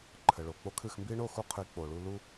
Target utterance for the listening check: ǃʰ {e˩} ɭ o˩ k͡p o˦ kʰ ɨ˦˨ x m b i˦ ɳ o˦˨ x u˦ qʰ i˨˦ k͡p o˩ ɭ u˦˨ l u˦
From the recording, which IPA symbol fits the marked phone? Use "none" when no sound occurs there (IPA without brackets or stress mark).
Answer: ɘ˩